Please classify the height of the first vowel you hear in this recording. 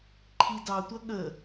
high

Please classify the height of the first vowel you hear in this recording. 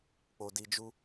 mid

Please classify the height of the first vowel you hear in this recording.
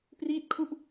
high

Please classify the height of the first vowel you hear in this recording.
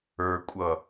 mid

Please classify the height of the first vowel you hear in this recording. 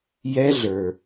mid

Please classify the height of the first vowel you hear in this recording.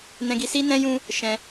mid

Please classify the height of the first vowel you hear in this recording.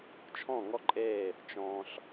mid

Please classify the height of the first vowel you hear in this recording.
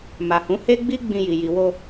low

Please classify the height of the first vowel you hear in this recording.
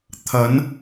low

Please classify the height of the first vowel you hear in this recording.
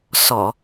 mid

